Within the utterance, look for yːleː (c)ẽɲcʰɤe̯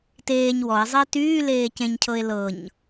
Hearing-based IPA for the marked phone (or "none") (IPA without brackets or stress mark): c